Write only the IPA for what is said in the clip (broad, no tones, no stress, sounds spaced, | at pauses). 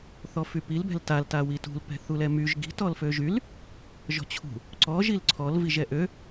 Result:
θ ɔ f y p i l b ɛ̤ l t a l t a w i t ṳ l p ɛ̤ θ u l ɛ m y ʒ ɡ i̤ t ɔ l f ø ʒ y l | ʒ ɔ̤ t͡ɕʰ ṳ | ǀ ɔ ʒ i l ǀʰ ɔ l v i ʒ ɛ ʔ ø